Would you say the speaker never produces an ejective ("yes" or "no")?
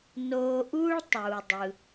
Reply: yes